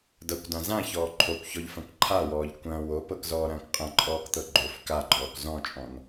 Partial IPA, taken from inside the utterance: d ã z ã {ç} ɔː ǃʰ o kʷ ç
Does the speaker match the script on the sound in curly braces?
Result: yes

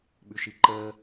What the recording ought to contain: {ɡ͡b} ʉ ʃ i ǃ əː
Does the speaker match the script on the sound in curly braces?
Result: no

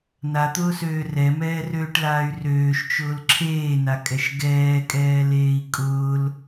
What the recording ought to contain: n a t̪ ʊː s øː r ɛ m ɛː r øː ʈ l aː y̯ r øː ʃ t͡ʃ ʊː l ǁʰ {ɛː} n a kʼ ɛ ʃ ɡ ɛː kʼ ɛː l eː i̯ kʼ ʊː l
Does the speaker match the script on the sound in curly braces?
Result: no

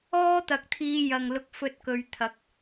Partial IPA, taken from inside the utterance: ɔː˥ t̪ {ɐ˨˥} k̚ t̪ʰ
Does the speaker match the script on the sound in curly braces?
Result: no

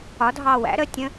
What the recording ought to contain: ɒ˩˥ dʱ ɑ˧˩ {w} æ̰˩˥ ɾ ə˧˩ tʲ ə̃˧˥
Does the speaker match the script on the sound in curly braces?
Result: yes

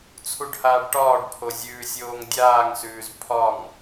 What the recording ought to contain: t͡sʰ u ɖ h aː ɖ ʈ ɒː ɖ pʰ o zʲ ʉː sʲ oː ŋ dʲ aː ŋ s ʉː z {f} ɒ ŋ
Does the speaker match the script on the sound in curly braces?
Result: no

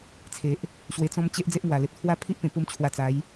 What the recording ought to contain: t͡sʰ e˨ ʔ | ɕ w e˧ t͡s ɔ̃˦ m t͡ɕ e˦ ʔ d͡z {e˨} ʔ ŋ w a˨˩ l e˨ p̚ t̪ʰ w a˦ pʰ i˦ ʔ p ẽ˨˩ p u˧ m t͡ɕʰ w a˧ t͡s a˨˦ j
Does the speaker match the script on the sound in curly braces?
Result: no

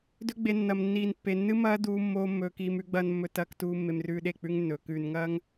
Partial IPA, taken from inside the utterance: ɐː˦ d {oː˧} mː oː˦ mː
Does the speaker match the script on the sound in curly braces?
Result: no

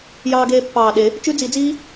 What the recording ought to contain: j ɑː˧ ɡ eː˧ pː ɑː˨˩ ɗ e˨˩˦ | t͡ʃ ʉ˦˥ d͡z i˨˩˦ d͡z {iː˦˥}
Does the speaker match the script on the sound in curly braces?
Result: yes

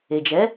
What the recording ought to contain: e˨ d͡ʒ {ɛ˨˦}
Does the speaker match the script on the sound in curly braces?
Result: yes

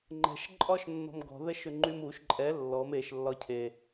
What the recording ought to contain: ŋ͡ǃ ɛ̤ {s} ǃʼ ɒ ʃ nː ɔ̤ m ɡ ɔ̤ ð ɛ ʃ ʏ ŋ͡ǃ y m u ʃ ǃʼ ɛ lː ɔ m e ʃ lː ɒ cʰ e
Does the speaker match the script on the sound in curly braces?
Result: no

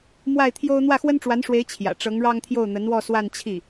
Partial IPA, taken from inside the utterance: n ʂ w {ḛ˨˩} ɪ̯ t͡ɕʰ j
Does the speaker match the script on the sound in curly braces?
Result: no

